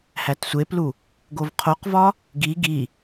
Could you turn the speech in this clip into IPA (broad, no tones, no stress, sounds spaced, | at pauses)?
h æ t sʷ e p l u | ɡ o v qʰ o q v ɒ | ɡ i ɡ i